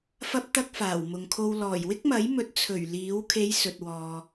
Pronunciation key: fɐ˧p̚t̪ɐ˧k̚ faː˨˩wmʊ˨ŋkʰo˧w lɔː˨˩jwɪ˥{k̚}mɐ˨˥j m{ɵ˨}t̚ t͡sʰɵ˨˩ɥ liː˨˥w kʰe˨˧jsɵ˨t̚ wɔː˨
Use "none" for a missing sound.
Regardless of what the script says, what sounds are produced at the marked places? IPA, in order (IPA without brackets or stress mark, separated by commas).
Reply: k̚, ɵ˨˥